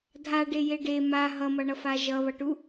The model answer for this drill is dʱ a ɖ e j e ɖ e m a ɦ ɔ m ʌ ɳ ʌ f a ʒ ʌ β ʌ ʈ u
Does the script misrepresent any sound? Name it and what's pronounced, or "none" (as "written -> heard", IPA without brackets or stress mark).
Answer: ɔ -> ʌ